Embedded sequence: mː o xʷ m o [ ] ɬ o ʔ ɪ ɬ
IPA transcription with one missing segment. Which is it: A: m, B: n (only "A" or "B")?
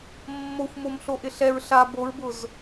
A